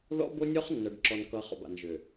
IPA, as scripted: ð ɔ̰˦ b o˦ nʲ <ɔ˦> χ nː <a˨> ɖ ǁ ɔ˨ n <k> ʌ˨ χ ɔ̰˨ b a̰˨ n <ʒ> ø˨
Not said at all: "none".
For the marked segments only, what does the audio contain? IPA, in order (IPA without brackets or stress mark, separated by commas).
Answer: ɔ˦, ʌ˨, k, ʒ